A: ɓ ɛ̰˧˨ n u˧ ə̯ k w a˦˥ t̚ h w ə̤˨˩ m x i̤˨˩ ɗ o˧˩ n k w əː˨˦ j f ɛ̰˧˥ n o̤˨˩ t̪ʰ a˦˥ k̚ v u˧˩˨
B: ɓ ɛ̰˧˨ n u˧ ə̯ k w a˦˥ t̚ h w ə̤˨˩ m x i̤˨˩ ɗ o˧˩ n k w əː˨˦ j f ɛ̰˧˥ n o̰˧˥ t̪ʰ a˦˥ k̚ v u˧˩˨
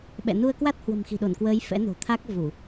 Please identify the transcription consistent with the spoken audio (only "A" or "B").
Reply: A